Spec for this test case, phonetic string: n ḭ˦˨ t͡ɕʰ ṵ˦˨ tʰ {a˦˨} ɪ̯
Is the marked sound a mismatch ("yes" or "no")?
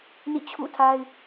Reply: yes